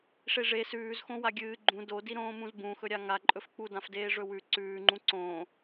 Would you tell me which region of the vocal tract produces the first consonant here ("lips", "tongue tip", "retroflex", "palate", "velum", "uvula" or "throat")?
retroflex